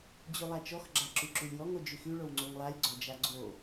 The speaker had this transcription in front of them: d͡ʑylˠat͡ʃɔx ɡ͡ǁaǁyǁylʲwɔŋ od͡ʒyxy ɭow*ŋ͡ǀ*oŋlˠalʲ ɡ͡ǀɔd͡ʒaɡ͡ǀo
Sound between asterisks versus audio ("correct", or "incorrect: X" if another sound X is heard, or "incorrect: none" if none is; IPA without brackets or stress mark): correct